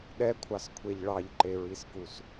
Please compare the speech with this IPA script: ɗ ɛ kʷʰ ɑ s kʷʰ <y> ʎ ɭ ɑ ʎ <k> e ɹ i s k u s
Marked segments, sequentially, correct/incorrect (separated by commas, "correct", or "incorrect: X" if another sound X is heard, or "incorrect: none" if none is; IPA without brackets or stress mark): incorrect: e, incorrect: ǃ